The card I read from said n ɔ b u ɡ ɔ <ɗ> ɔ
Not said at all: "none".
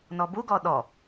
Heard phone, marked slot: ɗ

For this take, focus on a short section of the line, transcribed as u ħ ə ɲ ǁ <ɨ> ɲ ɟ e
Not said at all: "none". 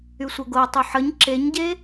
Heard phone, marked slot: e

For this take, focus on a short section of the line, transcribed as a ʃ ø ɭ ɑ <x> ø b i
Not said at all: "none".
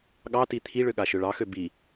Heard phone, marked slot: x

